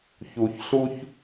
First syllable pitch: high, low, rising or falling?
low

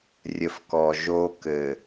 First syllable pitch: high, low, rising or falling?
low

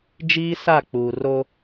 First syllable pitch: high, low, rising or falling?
high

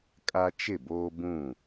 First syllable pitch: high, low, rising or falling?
high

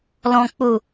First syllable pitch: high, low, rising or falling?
low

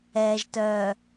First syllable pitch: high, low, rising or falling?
low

